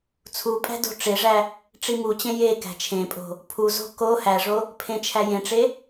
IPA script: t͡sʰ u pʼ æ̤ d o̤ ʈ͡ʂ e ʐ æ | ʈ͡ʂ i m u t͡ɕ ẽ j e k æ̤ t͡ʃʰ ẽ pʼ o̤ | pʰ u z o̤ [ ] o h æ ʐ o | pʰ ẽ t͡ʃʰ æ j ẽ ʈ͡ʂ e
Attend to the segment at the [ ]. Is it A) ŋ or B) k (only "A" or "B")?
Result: B